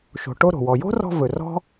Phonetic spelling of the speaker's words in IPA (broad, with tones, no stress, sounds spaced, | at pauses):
ʃ o̤˨ ʈ o˦ ɾ o̤˩ w ɔ˨ j o̤˥ r ɔ̤˦ v ɵ˨ r ɔ̤˥